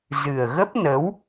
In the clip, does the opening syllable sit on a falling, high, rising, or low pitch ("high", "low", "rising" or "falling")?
low